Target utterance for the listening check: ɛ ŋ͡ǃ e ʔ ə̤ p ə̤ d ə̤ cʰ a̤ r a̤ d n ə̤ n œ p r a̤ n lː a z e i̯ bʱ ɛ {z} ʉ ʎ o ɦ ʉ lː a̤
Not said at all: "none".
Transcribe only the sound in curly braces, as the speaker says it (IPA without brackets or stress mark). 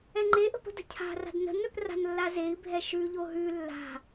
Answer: ʃ